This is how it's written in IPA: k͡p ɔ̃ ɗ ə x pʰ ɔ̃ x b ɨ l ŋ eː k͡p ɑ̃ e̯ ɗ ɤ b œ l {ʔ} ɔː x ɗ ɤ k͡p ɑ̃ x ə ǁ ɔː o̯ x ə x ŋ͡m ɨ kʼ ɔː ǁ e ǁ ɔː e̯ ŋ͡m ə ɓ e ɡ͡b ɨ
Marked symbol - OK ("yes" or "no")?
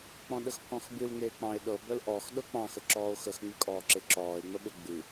yes